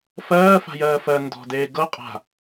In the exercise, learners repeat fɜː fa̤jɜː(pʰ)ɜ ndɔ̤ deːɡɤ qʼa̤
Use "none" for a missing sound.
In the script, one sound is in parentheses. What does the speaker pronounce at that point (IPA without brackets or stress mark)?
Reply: f